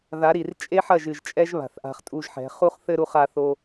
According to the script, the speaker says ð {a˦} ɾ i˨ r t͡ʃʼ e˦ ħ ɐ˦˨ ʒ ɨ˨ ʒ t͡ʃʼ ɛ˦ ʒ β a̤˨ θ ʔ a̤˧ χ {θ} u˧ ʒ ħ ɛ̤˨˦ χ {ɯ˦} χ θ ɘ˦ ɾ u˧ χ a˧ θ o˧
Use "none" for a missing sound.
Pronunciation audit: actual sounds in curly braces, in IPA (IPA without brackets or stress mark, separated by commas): a˨˦, tʼ, u˦